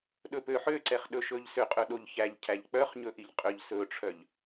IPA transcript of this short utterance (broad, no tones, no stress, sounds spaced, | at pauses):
ɗ ɵ p ø ħ ø ǀ ɛ χ ɗ ɵ ʃ ɵ ʎ s ø qʼ ɵ ɗ o ʎ ç æ ʎ cʰ æ ʎ k͡p œ χ ɲ ɵ ʔ i ʎ qʼ ø ʎ s ɵ ʈ͡ʂʰ œ ʎ